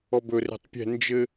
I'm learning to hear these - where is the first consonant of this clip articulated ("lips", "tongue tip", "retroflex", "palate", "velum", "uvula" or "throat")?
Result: lips